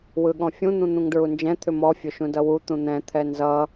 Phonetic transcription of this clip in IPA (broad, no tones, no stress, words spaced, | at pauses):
wɯɠɔ̃fʲũ n̪ũn̪ũŋdɹund͡ʒɛ̃ t̪ʰʏmɔ fʲɵʃũdʌwu t̪ũn̪ɛ̃ t̪ʰɛnzʌ